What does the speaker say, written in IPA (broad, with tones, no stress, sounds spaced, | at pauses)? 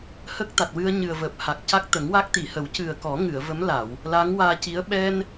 h ə˦˥ k̚ t̪ a˨˩ t̚ w ɨ˧ ə̯ ɲ ɨ˨˩ ə̯ v əː˨˩ p̚ h a˨˩ k̚ c a˦˥ k̚ t̪ ə˨˩˦ ŋ w a˦˥ k̚ t̪ i˨˩˨ h ə˨˩˦ w c ɨ˨˩ ə̯ k ɔ˨˩˦ ŋ ɨ˨˩˨ ə̯ v ə˧˥ m l a˨˩˨ w | l a˧˥ ŋ w aː˧ c i˧˥ ə̯ ɓ ɛ˧ n